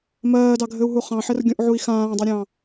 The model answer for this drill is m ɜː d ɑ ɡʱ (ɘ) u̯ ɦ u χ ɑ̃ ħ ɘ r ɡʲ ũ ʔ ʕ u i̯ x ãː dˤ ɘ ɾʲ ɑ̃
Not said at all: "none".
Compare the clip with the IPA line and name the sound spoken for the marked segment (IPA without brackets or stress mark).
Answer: ɘ